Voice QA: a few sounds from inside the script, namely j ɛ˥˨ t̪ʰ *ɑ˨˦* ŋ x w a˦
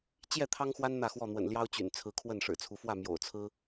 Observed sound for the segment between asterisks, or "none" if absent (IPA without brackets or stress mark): ɑ˦